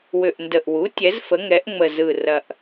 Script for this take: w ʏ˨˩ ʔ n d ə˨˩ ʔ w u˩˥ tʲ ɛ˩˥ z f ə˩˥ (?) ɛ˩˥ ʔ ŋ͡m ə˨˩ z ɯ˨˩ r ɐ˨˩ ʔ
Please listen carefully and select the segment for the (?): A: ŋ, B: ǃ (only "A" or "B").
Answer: A